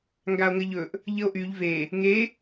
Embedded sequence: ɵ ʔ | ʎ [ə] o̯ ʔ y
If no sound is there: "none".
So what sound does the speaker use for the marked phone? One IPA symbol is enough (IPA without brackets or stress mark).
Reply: ə